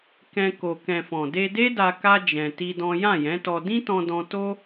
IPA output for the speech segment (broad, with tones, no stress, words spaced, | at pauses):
kɛ̃˧ko˨ kɛ̃˨ fɔ̃˨de˧de˦da˧ ka˦ d͡ʒɛ̃˧ti˦dɔ̃˦ jã˦˨jɛ̃˨˦tɔ˧ dĩ˦tɔ̃˧dɔ̃˧ to˦